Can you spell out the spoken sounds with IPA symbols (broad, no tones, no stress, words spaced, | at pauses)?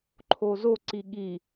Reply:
ǃʰozo ǀiɠi